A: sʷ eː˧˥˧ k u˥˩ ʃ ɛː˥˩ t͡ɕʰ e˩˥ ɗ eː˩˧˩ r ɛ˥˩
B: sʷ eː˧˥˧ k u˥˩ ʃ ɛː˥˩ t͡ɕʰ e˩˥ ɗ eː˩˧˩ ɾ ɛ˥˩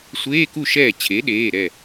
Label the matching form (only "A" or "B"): B